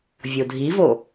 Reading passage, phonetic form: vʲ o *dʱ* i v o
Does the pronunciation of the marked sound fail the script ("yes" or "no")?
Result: no